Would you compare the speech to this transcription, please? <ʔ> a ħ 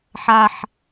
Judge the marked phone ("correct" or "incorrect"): incorrect